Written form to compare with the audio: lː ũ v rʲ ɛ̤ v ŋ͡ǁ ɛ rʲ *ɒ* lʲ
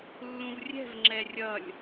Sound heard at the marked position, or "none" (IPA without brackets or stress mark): ʌ